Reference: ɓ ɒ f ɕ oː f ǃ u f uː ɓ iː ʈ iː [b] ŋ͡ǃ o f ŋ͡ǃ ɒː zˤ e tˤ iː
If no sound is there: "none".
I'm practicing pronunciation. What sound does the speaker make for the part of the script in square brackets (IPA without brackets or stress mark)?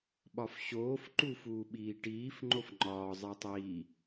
f